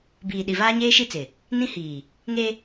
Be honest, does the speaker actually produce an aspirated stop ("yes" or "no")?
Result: no